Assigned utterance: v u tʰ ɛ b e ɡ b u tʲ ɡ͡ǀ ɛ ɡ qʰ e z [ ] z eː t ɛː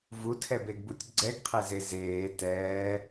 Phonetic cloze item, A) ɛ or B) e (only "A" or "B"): B